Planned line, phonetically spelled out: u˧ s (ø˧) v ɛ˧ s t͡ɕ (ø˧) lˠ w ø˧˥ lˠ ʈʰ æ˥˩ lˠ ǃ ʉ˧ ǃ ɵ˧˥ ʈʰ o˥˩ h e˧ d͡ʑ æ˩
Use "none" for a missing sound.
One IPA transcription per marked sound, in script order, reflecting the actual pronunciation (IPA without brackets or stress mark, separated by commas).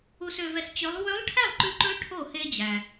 ø˧, ø˧˥